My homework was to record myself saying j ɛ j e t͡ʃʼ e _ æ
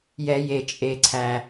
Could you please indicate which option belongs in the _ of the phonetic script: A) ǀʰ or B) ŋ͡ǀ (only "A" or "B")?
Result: A